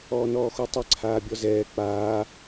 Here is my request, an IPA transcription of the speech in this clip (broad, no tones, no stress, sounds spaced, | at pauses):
ɔː n ɔː x o tˤ ɘ ǀʰ aː bʲ ɔ z ɛː k͡p aː